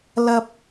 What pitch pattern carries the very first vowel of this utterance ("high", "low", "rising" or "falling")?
low